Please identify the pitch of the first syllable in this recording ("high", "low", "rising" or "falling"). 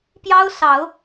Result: high